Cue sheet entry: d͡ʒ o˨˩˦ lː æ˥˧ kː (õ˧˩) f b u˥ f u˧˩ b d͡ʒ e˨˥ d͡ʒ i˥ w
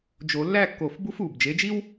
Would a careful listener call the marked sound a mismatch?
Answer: yes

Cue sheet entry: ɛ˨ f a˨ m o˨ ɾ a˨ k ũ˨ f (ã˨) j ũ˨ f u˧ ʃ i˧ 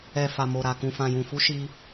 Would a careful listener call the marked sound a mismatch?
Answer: no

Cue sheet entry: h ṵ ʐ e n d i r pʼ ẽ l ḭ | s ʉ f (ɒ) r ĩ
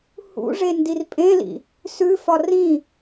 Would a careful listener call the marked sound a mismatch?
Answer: no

